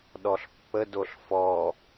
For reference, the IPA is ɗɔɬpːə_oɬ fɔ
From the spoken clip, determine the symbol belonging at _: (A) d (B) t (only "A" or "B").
A